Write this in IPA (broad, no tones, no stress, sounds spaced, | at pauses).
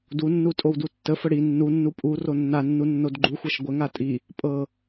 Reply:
d u nː u tʼ o w d u tː ə f ə ɽ i nː u nː u pʼ u r o nː a nː u nː o d ɡ͡ǃ u xʷ ɤ ʃ ɡʷ ə ŋ a tʼ i | pʼ ɤ